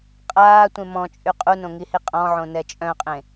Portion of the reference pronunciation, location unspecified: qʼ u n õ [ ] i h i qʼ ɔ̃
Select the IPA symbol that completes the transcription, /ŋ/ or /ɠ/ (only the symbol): ŋ